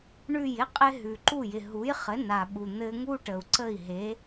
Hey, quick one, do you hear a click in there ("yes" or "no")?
yes